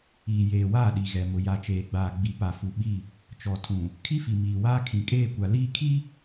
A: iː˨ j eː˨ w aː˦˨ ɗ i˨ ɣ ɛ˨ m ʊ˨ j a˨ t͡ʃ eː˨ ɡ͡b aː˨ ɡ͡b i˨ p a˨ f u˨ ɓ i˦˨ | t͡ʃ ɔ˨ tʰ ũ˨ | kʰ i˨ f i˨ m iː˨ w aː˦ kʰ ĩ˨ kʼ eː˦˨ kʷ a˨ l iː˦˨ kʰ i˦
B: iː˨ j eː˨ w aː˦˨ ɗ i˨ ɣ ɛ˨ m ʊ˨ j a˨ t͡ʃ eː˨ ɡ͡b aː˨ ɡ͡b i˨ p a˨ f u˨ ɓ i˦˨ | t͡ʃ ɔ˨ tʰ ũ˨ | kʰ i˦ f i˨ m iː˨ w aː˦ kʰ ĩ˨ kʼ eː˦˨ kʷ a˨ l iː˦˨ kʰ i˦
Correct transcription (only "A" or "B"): B